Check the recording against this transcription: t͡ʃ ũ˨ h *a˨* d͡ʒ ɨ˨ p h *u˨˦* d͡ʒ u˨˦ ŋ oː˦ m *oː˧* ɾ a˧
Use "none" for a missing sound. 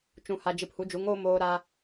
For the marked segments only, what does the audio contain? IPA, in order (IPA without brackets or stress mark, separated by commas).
a˨, u˨˦, oː˧